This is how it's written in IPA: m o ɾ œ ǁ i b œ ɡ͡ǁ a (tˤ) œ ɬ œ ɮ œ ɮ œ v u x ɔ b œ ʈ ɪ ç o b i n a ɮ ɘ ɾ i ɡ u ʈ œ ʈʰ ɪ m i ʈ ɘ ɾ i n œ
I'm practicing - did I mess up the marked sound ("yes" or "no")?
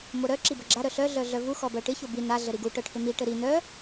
yes